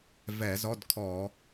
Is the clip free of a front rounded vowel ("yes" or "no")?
yes